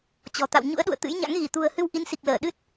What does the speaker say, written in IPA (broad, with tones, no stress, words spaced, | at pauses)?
t͡ɕɔ̤˨˩ t̪a̰˧˨wɲṵ˧˥ə̯ɗṵ˧˨ə̯ t̪ɨ̰˧˥jɲa̰˧˥ŋ ɣi˧˩t̪ṳ˨˩ə̯hɨ˧w ʔi˨˦nsi˨˩k̚ləː˧˩ ɗɨ˦˥t̚